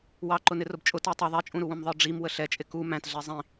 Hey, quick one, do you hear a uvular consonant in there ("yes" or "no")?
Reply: no